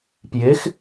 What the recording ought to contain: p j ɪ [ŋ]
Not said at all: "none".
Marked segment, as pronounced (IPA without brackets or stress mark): x